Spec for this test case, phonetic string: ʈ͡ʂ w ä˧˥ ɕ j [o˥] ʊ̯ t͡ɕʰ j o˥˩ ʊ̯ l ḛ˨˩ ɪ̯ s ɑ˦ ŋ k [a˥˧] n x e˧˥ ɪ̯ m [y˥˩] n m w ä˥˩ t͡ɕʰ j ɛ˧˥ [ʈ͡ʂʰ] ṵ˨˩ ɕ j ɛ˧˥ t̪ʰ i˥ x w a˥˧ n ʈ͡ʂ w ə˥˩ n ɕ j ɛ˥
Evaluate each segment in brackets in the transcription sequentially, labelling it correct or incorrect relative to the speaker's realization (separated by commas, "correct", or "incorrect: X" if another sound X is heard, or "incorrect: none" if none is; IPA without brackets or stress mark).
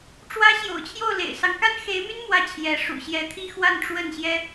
incorrect: o̰˨˩, incorrect: a˥, incorrect: y˥, incorrect: ʂ